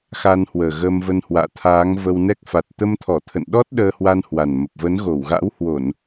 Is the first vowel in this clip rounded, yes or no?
no